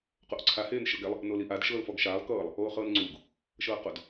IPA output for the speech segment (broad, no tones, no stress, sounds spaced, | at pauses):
q o ʔ ǀʰ a h eː n ʃ ɤ ɡ ɛ lˠ | n o l i ʔ a d ʃ ɤː l f ɔ ɡ ʃ aː lˠ k ɤː lˠ | oː χ ɤː n ŋ͡ǀ uː ɡ | ʃ ɤː q o d